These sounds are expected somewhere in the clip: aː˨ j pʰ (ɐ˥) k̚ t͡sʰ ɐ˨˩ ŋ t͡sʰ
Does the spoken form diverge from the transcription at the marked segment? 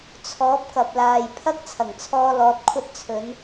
no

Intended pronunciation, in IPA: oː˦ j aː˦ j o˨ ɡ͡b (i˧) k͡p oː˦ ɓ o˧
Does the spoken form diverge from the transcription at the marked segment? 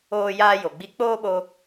no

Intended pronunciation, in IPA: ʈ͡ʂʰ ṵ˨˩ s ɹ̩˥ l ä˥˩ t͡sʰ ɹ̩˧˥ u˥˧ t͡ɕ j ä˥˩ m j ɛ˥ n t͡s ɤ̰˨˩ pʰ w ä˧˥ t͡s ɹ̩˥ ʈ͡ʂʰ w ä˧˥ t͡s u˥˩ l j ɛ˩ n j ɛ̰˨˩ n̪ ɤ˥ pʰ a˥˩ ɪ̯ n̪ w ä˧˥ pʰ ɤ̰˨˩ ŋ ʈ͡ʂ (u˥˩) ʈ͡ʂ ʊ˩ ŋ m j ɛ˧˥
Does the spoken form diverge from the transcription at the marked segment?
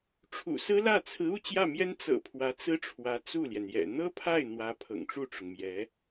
no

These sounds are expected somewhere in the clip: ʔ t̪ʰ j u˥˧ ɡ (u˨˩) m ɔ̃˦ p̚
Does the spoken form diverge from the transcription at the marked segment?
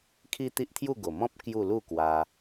yes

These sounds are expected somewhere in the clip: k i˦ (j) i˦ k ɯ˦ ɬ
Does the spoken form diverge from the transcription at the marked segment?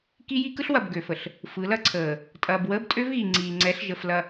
no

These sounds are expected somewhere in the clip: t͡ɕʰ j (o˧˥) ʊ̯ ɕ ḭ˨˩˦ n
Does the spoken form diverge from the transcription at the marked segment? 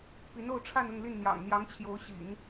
no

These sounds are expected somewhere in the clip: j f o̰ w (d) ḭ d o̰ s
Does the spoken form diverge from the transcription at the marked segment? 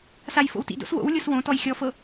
yes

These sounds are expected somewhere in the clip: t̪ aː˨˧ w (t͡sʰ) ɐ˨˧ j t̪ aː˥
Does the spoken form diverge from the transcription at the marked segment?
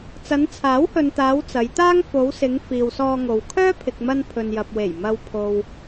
yes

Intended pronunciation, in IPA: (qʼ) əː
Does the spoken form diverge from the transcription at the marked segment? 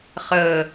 yes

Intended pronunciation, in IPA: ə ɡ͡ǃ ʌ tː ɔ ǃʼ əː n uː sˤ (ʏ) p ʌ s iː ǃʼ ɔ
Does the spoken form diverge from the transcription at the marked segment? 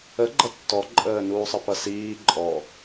yes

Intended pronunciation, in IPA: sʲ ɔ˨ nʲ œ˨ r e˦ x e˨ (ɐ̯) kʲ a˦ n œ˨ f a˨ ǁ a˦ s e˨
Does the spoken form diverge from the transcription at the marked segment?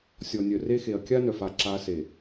no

